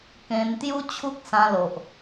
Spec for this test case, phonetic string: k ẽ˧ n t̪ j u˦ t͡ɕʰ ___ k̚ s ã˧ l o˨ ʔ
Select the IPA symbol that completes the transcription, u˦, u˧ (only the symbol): u˦